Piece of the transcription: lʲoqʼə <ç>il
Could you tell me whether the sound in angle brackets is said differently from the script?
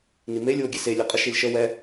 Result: yes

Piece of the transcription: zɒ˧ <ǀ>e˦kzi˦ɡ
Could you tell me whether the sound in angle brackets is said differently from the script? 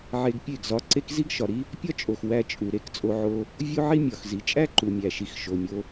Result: no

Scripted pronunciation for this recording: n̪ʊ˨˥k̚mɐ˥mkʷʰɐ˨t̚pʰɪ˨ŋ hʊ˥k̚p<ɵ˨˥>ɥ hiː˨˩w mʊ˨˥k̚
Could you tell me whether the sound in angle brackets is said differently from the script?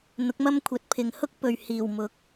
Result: yes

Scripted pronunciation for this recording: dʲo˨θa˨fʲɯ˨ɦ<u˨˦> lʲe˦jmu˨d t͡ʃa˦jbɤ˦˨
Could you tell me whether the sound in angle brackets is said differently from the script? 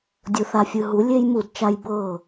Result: no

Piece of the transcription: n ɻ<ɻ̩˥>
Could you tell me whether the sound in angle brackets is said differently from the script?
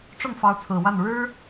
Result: no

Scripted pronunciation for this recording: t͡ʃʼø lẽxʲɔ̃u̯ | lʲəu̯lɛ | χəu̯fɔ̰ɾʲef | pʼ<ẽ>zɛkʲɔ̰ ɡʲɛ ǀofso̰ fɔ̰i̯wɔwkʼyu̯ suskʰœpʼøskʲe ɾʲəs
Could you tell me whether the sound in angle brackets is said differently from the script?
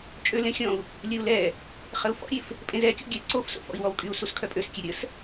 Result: no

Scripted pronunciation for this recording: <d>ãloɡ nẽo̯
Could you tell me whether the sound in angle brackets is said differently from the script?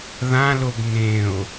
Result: yes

